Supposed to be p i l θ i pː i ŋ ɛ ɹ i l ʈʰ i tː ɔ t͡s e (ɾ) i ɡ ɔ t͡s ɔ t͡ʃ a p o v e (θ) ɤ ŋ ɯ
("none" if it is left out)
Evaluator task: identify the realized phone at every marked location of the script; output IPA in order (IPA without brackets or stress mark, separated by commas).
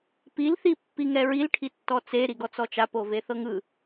ɾ, θ